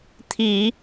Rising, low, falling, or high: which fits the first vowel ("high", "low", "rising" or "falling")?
low